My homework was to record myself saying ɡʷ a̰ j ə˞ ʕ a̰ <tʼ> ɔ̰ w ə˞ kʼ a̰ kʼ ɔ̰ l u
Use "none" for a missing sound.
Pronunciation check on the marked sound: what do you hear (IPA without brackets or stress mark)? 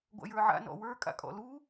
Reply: n